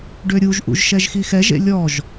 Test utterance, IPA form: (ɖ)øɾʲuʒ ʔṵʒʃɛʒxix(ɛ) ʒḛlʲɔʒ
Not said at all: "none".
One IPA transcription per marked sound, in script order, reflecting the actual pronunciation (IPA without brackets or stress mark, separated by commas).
ɖ, ɛ